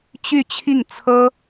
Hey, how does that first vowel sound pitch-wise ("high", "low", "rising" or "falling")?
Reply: falling